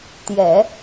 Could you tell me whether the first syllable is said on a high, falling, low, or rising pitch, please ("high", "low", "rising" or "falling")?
low